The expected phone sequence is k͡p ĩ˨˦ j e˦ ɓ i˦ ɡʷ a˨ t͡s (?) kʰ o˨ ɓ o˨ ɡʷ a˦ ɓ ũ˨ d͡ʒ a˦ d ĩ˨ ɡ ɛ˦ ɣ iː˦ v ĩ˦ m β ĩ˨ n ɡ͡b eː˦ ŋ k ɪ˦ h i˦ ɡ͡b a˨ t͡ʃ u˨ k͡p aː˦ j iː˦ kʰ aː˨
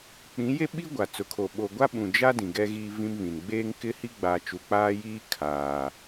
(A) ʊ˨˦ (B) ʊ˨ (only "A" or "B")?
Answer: B